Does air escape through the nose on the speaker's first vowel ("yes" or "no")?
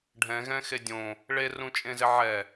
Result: yes